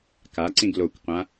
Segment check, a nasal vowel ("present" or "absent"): present